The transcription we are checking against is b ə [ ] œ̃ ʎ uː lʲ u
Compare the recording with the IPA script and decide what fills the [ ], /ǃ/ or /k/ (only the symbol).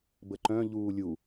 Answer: ǃ